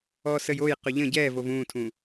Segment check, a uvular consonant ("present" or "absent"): present